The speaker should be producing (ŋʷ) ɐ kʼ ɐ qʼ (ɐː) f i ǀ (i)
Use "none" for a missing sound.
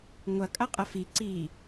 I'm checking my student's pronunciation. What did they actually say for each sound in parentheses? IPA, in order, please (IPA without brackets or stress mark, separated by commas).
ŋʷ, ɐ, i